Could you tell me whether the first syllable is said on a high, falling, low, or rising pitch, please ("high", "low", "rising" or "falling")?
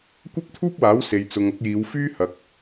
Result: high